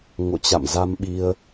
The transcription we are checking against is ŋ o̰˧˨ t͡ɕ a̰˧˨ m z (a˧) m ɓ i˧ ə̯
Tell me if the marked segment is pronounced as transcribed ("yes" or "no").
yes